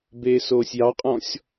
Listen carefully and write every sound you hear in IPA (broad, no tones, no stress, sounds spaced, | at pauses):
b eː s oː sʲ j ɑ qʼ ɔ̃ sʲ